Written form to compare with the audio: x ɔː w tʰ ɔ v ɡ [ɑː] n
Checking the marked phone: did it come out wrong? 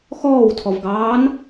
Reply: no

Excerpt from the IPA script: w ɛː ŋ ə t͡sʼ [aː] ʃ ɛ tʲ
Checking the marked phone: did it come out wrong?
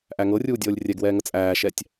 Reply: yes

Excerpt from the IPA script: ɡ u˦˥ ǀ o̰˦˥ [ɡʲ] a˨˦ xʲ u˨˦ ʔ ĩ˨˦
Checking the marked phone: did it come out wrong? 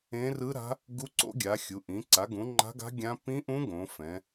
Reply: no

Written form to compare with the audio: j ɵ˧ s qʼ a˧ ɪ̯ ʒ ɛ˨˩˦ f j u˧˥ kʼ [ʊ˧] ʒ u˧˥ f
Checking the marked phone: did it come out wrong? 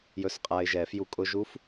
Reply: no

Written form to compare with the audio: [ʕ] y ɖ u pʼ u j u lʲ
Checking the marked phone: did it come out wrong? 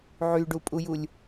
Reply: no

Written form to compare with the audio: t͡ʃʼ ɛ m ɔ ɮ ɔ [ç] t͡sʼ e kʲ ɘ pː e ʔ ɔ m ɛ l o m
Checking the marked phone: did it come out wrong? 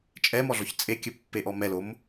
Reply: no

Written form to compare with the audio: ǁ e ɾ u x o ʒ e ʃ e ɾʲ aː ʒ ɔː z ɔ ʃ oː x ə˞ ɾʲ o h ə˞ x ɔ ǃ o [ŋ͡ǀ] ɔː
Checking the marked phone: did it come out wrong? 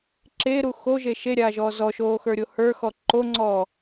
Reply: no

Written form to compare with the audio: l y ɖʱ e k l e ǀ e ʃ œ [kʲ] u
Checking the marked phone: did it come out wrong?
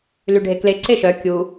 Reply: no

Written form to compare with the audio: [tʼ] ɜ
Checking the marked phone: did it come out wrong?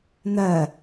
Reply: yes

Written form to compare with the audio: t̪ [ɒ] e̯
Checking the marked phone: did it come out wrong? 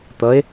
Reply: yes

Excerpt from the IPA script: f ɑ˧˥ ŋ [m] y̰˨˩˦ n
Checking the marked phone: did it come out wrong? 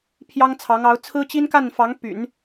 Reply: yes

